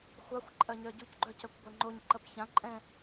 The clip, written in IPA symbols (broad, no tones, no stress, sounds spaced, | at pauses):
xʷ ɑ xʷ ǃʼ ɜ ɲ œ ɟ u c ɡ͡ǃ œ c œ kʷ ɡʷ ɛ ŋ͡ǃ o ɲ ǃ ɐ p ç ã ǃʼ ɛ̃